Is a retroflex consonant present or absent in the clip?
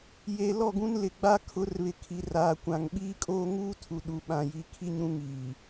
absent